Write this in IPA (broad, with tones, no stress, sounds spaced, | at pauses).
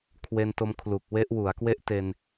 kʰ w e˧ n t o˧ m kʰ l u˨˩ k̚ w e˦˥ ʔ w u˩˦ a̯ k w e˦˥ ʔ t e˧ n